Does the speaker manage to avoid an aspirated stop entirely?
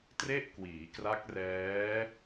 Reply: yes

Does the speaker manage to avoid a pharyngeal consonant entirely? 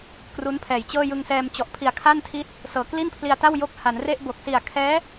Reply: yes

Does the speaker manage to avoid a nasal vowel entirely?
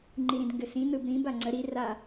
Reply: no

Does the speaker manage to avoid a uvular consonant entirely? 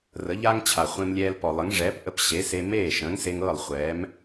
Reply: no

